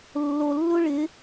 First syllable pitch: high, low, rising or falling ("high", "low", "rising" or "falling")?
low